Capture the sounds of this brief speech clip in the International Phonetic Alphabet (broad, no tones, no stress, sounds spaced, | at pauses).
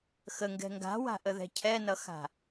x ə ŋ ɡ ɛ̤ ŋ ɡ a̤ w a̤ ʔ ə ð ɛ̤ cʰ ɛ n ʌ x a̤